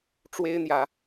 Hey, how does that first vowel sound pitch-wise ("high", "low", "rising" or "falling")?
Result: high